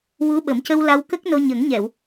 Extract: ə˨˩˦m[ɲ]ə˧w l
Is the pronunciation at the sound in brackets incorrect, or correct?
incorrect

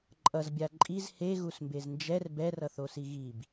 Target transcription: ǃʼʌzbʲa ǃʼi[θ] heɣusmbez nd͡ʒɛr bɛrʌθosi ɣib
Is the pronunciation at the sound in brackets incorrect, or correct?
incorrect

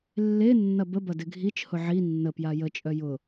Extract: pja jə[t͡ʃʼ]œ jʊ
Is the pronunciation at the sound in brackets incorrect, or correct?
correct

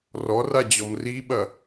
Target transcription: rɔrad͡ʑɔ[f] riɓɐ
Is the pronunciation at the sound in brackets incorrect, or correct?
incorrect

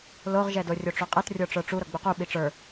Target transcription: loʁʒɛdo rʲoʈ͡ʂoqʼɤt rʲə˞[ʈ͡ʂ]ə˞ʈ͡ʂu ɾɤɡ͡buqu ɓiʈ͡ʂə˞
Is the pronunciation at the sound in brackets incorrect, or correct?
correct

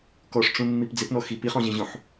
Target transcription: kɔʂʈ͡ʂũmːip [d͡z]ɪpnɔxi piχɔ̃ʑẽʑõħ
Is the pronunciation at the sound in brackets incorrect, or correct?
correct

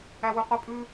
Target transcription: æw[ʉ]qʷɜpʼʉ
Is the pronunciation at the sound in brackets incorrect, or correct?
correct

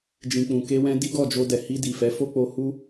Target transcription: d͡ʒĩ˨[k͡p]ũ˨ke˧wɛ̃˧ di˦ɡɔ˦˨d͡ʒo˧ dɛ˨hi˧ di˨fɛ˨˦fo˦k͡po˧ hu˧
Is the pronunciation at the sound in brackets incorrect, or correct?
correct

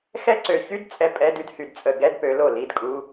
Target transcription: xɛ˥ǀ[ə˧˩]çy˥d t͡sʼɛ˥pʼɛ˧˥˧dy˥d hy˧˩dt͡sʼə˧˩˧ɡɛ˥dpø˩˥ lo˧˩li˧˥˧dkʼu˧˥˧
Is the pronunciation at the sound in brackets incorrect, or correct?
incorrect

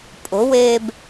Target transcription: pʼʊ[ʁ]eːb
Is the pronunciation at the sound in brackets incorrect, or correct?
incorrect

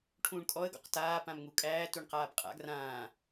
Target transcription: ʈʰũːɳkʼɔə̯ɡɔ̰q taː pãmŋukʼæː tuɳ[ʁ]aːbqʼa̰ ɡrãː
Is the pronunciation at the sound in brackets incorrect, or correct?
incorrect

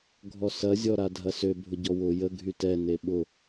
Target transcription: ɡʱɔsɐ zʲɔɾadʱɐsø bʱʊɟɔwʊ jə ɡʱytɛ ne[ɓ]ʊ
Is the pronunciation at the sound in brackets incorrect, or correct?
correct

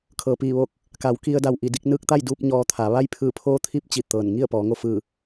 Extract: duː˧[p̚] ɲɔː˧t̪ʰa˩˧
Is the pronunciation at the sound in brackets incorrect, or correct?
correct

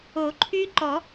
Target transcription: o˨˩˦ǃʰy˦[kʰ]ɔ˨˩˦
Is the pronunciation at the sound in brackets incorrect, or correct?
incorrect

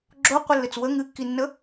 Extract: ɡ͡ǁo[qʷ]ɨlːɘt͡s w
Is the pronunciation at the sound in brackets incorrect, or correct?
correct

